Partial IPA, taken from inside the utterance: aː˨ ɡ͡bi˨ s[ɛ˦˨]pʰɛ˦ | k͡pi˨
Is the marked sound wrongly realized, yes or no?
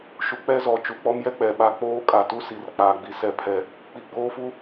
no